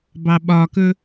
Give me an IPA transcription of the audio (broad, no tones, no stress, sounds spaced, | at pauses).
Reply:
b ɑ ɓ ɒ k ɵ